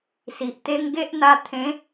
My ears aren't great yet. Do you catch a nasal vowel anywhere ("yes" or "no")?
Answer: yes